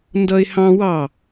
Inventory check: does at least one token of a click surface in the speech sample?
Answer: no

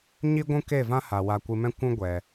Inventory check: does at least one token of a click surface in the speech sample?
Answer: no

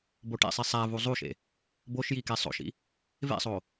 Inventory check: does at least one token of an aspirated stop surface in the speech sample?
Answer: no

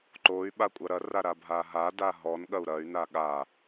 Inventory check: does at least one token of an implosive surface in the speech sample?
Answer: yes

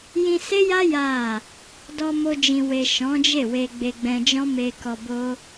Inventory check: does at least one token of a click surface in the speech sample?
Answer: no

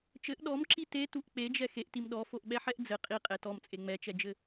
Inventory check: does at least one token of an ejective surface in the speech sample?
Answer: yes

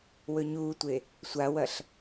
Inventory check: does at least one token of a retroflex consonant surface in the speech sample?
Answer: no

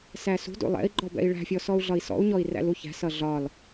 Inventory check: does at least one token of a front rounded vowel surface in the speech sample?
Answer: no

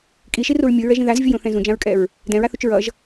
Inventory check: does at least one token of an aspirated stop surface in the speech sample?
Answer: no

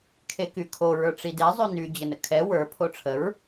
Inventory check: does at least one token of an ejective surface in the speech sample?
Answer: no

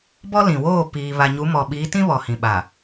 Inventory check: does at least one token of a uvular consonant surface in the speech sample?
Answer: no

